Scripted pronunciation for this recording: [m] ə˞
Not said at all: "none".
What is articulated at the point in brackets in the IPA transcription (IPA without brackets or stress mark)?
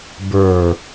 b